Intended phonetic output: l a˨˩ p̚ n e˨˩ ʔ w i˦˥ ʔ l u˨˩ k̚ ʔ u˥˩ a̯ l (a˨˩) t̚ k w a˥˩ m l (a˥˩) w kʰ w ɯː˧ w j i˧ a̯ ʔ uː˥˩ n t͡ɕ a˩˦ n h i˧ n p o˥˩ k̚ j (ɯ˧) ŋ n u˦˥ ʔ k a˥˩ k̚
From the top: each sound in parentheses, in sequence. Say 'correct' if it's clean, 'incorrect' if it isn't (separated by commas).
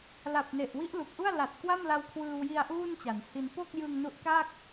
correct, incorrect, correct